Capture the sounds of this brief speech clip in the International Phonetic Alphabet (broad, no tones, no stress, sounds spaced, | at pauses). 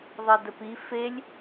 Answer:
ðˤ e d ə p i f e lʲ